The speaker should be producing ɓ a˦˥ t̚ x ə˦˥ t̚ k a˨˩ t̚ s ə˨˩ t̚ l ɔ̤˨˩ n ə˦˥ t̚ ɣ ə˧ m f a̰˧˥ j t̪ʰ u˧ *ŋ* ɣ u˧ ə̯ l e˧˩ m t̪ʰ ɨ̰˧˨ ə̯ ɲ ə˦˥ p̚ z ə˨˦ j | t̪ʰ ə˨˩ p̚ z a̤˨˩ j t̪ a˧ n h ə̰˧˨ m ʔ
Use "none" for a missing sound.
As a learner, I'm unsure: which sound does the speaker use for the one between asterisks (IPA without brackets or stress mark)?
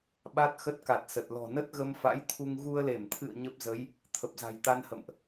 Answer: ŋ